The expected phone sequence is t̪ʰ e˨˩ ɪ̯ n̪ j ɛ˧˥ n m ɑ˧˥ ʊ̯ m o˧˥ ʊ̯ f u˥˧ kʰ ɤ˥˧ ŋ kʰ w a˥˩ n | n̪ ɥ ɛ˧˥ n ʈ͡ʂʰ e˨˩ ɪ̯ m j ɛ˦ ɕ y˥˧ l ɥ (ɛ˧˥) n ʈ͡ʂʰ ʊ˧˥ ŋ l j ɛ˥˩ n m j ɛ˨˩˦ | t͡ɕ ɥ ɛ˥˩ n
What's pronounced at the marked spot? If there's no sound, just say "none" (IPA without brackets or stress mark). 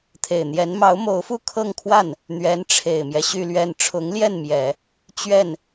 ɛ˥˩